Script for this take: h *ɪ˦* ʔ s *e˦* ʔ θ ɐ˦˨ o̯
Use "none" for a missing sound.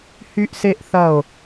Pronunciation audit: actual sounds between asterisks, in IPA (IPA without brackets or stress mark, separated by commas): y˦, e˦